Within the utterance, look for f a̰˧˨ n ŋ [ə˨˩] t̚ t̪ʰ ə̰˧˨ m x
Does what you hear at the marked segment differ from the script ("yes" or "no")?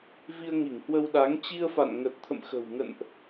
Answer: no